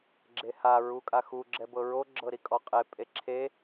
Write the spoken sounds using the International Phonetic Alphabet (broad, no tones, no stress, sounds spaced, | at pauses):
ɡ͡ǁ e h a ɹ u kʼ a x u ɡ͡ǁ ɛ b ɤ ɹ o ɡ͡ǁ ɤ ɾ i kʼ ɔ qʼ e pʼ e ǁʰ e